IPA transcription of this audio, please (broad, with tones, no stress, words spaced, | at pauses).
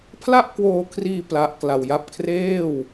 pʰla˥˩ʔkwoː˧kʰriː˧ pla˦˥ʔkla˧wja˦˥p̚ kʰreː˥˩w